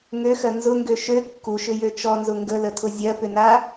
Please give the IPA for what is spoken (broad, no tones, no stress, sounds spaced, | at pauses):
ŋ ø x ɜ n z ʊ ŋ ɡ ø ʃ ø kː u ʃ ʏ j ø t͡ʃ ɔ n z ʊ ŋ ɡ ə l ə tʰ ʊ zʲ ɜ p ʏ n a